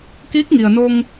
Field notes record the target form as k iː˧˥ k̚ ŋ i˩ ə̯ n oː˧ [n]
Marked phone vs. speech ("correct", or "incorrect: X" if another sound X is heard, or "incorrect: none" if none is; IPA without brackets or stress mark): incorrect: ŋ